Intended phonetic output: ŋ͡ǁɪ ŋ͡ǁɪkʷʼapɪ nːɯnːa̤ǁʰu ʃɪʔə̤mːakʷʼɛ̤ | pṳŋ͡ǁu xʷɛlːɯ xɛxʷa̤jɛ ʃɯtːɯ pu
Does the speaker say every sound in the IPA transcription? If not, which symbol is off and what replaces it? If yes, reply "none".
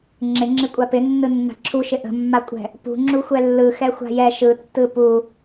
none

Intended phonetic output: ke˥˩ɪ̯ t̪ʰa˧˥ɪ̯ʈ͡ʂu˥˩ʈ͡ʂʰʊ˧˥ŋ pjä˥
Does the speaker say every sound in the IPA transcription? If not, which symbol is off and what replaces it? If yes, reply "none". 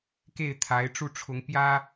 none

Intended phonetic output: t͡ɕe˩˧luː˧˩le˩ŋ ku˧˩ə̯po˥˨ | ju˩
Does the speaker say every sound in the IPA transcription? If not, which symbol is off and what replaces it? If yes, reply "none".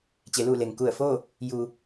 p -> f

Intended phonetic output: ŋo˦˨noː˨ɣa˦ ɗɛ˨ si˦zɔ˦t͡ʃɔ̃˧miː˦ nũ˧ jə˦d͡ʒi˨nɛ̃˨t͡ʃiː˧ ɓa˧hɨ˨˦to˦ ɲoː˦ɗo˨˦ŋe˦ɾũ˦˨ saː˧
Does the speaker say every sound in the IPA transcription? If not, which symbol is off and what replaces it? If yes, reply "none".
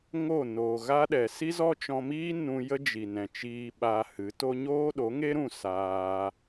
none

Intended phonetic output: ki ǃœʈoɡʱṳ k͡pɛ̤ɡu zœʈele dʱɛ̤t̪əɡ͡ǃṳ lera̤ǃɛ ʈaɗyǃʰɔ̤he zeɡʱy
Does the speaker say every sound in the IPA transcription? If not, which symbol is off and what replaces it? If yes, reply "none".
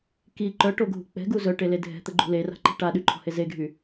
ɛ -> ɛ̤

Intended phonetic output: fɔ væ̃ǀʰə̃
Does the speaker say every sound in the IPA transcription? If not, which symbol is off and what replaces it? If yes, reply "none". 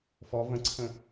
æ̃ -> ə̃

